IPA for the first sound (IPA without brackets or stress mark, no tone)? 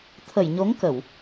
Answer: t̪ʰ